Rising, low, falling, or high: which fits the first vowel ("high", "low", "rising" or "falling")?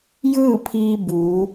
falling